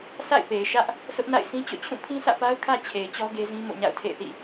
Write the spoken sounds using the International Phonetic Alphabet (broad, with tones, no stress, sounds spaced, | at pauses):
sʰ a̰˦˨ ɪ̯ p e˨ ɪ̯ ʃ ä˦ ʔ | s ʊ˦ ʔ n a̰˦˨ ɪ̯ sʰ ĩ˦ t͡ɕ o̰˦˨ t͡ɕʰ ũ˦˨ pʰ ĩ˦ s ä̰˦˨ p a˦ ʊ̯ kʰ ä˦ t͡ɕʰ e˨ ɪ̯ t͡ɕ ɔ˦ ɡ e˦ z ĩ˦ m o̰˦˨ ɲ a̰˦˨ ʊ̯ tʰ ḛ˦˨ ɪ̯ θ ḭ˦˨